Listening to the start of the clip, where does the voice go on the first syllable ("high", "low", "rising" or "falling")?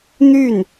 falling